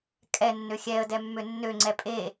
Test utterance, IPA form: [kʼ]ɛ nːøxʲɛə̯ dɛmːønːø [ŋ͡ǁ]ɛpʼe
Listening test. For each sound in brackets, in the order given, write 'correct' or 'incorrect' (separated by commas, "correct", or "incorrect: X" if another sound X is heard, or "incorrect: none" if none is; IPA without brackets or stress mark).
correct, incorrect: ŋ͡ǀ